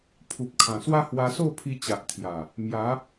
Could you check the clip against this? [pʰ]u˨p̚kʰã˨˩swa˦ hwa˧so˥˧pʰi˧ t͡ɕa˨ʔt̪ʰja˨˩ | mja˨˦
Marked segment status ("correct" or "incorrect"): correct